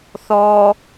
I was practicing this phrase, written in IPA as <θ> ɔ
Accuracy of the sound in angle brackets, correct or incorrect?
correct